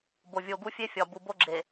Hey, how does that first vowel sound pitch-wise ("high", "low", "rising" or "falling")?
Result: low